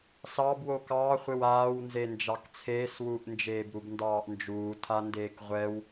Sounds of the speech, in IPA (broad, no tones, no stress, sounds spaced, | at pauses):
s ɑ b w o k ɑː χʷ e w aː w n z e n d͡ʒ ɑ k t͡sʰ eː s w uː ʔ n d͡ʒ eː b ɾ u b n d ɑː ʔ n d͡ʒ uː tʰ a n d eː k ʁʷ ɛ w